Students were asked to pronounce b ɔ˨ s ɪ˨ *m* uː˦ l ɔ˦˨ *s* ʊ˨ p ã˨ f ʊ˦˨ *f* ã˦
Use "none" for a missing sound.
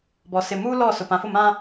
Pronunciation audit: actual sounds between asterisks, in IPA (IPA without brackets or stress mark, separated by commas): m, s, m